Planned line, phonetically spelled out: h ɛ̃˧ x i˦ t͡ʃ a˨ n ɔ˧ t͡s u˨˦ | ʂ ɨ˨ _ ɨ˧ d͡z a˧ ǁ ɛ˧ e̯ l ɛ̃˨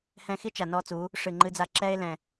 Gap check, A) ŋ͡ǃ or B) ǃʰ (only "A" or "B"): A